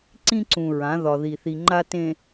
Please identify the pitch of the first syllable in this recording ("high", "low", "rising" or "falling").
high